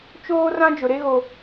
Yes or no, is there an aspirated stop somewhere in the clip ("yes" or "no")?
no